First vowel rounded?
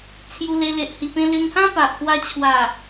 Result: yes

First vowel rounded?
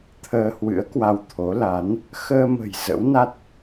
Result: no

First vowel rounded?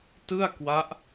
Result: no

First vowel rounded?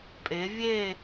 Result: no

